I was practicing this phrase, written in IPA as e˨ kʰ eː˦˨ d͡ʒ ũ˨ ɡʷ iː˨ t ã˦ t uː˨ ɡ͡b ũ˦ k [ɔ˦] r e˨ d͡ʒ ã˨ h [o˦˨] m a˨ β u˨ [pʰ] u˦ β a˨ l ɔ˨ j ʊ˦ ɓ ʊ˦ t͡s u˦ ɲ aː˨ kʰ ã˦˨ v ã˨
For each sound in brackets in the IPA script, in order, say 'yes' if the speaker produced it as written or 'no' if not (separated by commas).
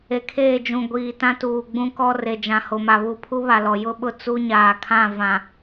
yes, no, yes